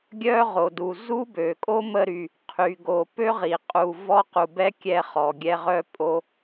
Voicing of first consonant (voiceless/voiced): voiced